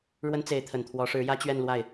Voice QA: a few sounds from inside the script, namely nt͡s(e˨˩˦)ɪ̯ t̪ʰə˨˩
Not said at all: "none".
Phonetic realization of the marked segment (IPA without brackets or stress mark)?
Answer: e˧˥